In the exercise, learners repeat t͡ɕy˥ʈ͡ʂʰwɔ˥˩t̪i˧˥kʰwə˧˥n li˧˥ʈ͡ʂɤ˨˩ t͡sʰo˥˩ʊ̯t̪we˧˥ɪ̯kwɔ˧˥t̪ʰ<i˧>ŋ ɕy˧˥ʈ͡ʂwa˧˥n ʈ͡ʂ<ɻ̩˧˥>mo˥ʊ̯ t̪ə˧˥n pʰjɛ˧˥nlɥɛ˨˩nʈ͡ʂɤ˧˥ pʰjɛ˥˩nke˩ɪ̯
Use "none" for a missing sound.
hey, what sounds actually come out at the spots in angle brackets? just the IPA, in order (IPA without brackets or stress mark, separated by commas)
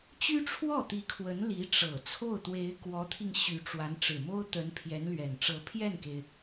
i˧, ɻ̩˨˩